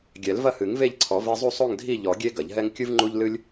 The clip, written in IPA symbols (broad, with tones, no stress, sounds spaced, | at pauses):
ɡʲ ɛ˨˩˦ l v ɐ˦˨ h ɨ˨˩˦ ŋ v e˦˨ ʎ ǀʰ ɔ˨˩˦ v e˦˨ zˤ u˦˨ sˤ o˦˨ ŋ dʱ i˦˨ ʎ ɔ˨˩˦ ɡʲ e˥ ɡ ɐ˨˩˦ ʎ ɦ ɛ˥ ŋ kʲ ɨ˥ v ŋ͡ǃ u˥ ʎ l ɨ˥ lʲ